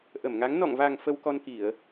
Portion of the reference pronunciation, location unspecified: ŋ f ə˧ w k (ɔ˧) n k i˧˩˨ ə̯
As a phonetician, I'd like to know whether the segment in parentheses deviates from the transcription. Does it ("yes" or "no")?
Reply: no